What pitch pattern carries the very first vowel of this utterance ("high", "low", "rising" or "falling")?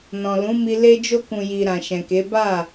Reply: low